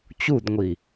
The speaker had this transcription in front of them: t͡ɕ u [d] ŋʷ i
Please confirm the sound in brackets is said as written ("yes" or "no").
yes